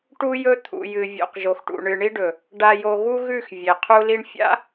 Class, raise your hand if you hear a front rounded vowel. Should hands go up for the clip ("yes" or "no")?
no